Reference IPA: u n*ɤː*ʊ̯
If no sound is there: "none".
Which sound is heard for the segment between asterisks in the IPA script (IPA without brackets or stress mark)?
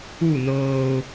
ɤː